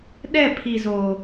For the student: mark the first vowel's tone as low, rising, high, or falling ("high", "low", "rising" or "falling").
falling